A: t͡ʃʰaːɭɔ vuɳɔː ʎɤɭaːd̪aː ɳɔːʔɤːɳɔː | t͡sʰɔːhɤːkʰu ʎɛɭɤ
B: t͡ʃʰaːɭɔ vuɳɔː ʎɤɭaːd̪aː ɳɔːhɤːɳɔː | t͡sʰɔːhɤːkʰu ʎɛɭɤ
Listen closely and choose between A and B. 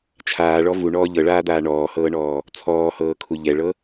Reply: B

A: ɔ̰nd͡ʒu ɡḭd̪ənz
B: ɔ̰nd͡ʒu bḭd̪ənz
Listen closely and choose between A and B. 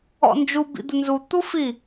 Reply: B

